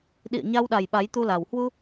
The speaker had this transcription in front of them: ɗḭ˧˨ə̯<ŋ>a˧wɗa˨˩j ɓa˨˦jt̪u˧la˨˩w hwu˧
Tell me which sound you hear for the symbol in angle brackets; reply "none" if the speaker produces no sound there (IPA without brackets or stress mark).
ɲ